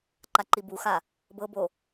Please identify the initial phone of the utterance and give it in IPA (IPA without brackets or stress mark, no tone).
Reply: ǃ